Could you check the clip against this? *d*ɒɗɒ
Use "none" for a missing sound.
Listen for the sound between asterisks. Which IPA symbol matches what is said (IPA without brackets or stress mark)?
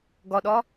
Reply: ɡ